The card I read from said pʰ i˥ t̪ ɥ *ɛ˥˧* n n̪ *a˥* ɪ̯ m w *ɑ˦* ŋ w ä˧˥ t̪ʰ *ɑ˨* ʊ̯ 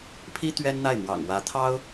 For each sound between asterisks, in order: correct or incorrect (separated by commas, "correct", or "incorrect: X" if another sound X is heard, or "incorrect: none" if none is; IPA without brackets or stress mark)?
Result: incorrect: ɛ˥, incorrect: a˥˩, incorrect: ɑ̰˨˩, incorrect: ɑ˥